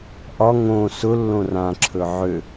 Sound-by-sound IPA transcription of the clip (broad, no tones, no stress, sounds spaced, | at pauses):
ʔ ɒ ŋ õ s ʊ lː õ r ã ǁʰ ɵ ʕ ø